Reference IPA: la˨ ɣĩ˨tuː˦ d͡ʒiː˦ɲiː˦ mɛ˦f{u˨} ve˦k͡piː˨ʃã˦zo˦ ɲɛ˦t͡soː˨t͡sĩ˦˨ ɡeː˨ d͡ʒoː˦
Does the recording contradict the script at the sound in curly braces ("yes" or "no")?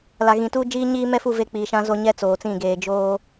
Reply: yes